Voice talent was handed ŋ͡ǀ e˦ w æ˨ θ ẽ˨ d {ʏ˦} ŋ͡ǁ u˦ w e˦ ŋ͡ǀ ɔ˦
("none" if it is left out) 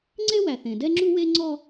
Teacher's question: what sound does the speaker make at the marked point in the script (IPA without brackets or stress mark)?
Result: ɛ˦